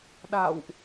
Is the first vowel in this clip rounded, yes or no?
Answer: no